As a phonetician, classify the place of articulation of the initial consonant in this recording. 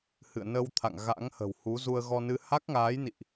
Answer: glottal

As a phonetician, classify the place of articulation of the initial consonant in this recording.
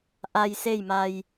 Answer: glottal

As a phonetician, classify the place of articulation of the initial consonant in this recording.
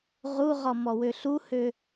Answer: uvular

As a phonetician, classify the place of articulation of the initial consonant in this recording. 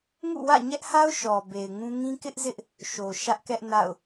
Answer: velar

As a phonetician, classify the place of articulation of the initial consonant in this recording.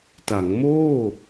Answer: alveolar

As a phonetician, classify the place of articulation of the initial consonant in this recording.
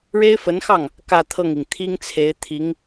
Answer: retroflex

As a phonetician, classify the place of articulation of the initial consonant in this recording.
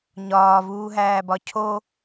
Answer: palatal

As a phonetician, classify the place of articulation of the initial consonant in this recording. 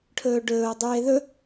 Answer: retroflex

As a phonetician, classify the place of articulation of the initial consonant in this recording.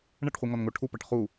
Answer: retroflex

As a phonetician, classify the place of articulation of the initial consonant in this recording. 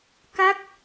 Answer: velar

